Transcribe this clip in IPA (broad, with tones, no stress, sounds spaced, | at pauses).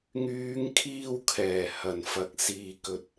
ŋ yː˨˧ ŋ kʰ iː˧ w kʰ ɛː˨˩ h ɐ˨˩ n f ɐ˨˥ k̚ s iː˨ k ɵ˨ t̚